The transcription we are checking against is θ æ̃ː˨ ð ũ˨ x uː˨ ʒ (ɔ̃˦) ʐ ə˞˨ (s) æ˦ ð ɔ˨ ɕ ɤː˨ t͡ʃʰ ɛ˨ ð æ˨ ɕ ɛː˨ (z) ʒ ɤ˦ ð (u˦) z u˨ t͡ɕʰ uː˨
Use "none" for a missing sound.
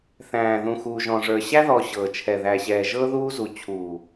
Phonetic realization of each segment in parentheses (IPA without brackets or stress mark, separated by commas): ɔ̃˨, ɕ, none, uː˦